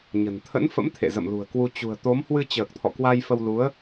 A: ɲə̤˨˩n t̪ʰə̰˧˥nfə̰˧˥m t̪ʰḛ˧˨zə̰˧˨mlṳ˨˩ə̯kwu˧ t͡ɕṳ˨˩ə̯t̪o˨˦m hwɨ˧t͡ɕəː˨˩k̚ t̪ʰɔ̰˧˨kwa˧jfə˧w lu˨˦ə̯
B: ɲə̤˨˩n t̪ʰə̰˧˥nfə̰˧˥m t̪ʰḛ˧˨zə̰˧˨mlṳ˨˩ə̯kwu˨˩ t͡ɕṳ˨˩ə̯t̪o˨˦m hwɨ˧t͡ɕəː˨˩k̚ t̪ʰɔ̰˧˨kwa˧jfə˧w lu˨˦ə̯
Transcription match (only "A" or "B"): A